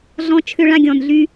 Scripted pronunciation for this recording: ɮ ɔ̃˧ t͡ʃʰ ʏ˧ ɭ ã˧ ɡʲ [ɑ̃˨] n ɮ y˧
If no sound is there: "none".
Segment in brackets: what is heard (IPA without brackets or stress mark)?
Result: ɔ̃˨